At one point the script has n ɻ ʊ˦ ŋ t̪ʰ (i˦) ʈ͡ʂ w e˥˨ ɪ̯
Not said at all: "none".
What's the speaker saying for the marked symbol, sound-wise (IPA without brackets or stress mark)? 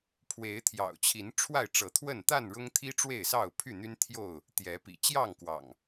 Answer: i˦